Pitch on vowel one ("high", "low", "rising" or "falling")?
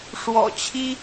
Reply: low